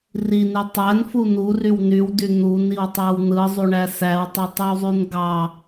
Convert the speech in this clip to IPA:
r i n e tˤ æ n f u n u r y w n y w d y n̪ u n i w tˤ æ w n̪ ɯ zˤ u ɳ æ s æ w tˤ i tˤ i w zˤ y n ɡ ɑ

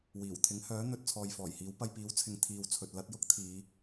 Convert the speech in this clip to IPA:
w iː˨˩ w t̪ʰ ɪ˨˥ ŋ h œː˨˥ n̪ ɵ˧ t̚ t͡sʰ ɔː˨ j f ɔː˨˩ j h iː˨˥ w p ɐ˧ j p iː˨˥ w t͡sʰ ɪ˨ ŋ t̪ʰ iː˨ w t͡sʰ ɵ˨ t̚ l ɐ˧ t̚ j ʊ˥ k̚ t̪ʰ iː˨˧

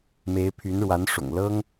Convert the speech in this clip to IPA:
m e˧˥ ɪ̯ pʰ y˧˥ n ɻ w a˧˥ n ʂ ʊ̰˨˩ ŋ l ɤ˥ ŋ

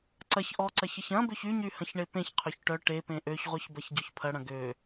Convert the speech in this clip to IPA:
ǀ ɐ ç ʔ ɔ ǀ ɐ ç ɐ ç ɐ̃ b ø ç y ɲ y h ɐ̃ ç ɳ e p ẽ ç qʰ ø ç ʈ œ ʈ e p ẽ ʔ ø ç ʁʷ œ ç b ɐ ç ɟ ø ç pʰ ɐ ɽ ɐ̃ ɡ ø

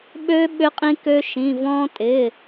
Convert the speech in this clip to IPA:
ɓ ø˥ ɓ ʏ˥ qʼ ĩ˥ k ø˥ ʃ ĩ˧˥˧ v ɔ̃˥ tʼ ɪ˧˥˧

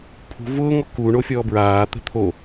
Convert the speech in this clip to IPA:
pʰ ṳ v ʊː ŋ ɔ k u ɳ o fʲ ɔː b ɹ aː t̪ ə̤ t̪ʰ o

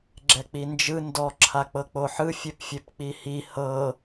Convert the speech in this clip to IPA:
ɡ͡ǁ ɛ k͡p i n d͡ʒ ɯ n d ɔ ǁʰ a k͡p ɤ k͡p o ħ ɯ fʲ e p fʲ e p k͡p i h i h ɤ

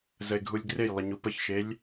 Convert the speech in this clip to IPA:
z ə e̯ ɡʱ u lʲ ɡ r e j lˠ ə ɲ u p ə ç ʃ e lʲ

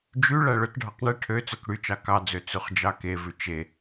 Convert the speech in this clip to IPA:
d͡ʒ y ɭ æ ɭ ɵ t ɖʱ ɑ q ɳ ɛ ʈʰ ø t͡s œ k ɽ y t͡ʃ ɑ k ɑ d͡z ø t͡s ʉ χ d͡ʒ ɑ k e v ʉ t͡ʃ e

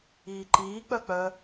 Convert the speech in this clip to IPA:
iː ǃ iː k͡p œ k͡p œ

